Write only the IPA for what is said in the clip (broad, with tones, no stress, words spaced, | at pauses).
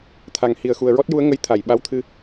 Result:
t̪ʰa˨˩ŋ hi˨˩ə̯xu˨˩ə̯ɹɔ˦˥t̚ ju˧˥ə̯ŋə˧˥j t̪ʰa˨˩˨jɓa˧˥wt̪ʰɨ˧